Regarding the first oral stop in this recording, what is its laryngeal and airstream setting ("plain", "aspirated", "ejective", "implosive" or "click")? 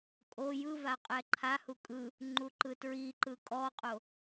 ejective